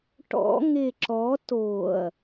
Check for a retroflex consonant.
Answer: present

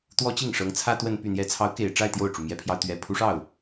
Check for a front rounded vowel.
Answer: present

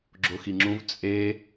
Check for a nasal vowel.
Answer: present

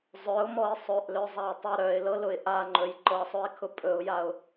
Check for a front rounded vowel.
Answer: present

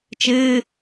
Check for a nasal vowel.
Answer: absent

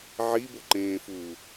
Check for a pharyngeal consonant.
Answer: present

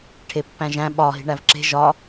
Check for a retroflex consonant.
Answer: present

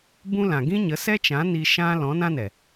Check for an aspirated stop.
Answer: absent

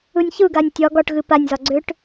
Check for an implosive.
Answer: absent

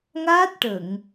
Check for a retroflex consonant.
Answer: present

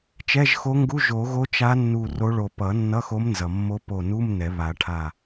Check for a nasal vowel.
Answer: absent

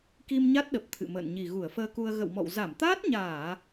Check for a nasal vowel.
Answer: absent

